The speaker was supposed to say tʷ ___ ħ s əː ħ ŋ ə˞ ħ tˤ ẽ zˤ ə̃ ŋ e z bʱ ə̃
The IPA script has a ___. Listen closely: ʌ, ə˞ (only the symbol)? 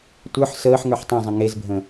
ə˞